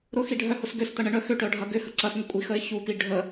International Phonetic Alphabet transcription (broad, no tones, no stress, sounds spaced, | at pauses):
ɾ ʊ x i ɖʱ œ h ʊ s ɡ ø s t̪ ɐ ɳ ə ɳ œ x ʏ ʈ œ ɖʱ ɐ ɡ ʏ h ə ǀ ɐ s ŋʷ ə kʷʼ i x ə ɪ̯ ç u p i ɖʱ ə